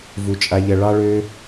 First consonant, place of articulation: labial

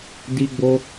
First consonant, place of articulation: alveolar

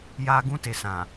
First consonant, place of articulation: palatal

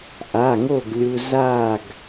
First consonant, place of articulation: glottal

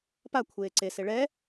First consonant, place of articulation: labial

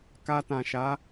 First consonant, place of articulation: velar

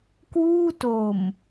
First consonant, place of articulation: velar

